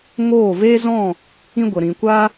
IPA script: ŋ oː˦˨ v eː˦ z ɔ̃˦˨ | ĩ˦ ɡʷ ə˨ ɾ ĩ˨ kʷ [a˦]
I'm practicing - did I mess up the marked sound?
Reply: no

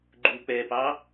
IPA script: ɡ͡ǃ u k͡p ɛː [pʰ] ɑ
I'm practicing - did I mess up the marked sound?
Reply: yes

